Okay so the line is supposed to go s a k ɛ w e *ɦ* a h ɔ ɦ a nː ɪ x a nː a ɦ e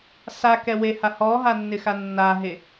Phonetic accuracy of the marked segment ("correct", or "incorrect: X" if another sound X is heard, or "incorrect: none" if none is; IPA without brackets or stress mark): incorrect: h